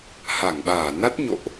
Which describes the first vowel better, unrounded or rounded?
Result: unrounded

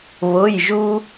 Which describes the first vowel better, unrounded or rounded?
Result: rounded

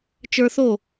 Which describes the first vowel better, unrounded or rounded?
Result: unrounded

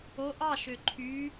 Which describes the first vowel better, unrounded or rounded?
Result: rounded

